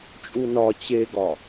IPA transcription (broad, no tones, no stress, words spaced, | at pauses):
t͡ʃʼunɒ t͡ɕeɡɒ